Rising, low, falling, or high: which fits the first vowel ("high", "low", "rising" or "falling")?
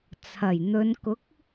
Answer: low